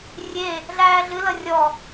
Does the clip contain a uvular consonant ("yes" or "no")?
no